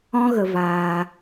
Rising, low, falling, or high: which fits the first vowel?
high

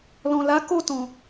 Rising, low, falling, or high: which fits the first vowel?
low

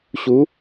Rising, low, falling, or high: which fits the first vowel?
rising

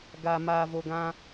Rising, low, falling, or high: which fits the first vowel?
low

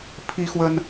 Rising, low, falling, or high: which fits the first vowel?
high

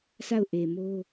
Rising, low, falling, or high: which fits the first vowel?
falling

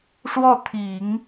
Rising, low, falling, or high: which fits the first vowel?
falling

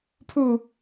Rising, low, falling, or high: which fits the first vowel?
falling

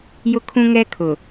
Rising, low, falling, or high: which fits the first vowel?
high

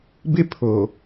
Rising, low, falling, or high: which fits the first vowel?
high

